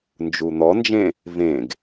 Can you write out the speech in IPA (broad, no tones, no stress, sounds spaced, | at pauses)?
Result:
n d͡ʒ u n̪ ɔ n d͡ʒ ẽ | v ẽ ɡ